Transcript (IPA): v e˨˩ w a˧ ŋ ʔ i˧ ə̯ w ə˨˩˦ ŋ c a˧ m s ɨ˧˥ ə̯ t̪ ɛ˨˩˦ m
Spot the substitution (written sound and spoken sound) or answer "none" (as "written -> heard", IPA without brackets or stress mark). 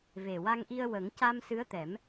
none